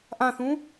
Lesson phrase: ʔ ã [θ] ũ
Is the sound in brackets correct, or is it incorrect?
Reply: correct